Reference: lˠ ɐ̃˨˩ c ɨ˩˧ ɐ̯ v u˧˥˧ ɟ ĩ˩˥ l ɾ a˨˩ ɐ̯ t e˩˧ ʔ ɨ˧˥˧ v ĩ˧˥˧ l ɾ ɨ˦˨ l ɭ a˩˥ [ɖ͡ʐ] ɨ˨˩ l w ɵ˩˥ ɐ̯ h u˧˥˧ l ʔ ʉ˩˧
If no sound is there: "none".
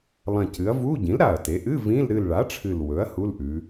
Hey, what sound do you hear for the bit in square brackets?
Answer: ʈ͡ʂʰ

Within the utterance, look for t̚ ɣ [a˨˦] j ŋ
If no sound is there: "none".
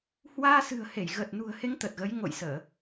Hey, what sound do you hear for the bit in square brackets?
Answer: ə˨˦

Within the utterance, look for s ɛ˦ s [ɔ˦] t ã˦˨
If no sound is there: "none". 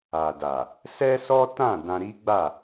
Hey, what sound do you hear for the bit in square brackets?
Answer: ɔ˦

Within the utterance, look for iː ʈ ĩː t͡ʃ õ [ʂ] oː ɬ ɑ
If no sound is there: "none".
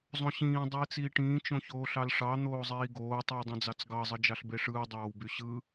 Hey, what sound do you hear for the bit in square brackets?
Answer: ç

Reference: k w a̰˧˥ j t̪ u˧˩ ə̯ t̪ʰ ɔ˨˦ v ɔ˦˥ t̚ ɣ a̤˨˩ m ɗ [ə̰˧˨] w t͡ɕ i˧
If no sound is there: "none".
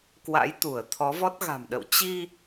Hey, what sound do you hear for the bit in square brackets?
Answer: ə̰˧˨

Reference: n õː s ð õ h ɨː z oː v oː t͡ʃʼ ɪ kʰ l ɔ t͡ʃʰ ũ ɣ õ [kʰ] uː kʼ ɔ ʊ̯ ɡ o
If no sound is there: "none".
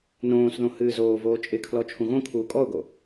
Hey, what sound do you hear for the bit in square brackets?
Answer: kʰ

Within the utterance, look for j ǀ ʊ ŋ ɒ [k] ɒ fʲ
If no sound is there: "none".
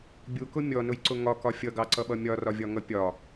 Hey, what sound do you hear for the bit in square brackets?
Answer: k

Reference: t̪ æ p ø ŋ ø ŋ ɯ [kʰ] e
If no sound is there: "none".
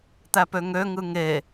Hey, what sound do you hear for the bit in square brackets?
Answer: ŋ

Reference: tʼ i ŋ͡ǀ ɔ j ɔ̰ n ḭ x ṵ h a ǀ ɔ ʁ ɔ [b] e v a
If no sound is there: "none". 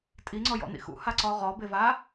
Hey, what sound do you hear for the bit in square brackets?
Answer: b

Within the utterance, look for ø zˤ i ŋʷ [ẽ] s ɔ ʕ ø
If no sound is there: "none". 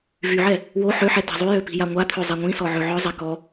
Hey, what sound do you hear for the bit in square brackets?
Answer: ĩ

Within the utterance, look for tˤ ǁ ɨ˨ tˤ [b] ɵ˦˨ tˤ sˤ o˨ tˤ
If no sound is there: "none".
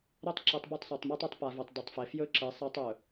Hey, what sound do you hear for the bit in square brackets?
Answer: b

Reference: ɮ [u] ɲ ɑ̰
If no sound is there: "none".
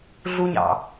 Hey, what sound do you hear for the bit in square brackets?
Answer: u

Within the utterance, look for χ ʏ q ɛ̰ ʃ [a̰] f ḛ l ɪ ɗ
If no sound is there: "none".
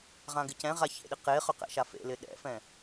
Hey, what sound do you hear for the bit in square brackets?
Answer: a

